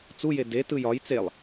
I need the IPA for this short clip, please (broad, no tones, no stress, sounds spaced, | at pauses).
t͡s u j e d e t ɯ j ɒ j t͡s e lˠ